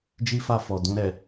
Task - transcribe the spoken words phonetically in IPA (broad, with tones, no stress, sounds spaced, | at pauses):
d͡ʒ i˦ f a˦˨ f ɔ˨ d ũ˧ ɾ ɛ˨